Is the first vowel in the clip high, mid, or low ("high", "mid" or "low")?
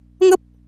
mid